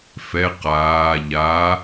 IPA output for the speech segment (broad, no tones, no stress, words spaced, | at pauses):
fɛ qaː ʎa